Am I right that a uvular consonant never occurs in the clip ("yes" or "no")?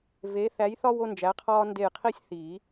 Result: no